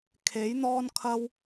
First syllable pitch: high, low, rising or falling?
rising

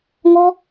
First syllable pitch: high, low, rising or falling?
high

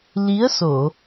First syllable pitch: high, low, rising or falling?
rising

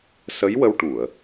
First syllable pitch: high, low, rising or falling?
rising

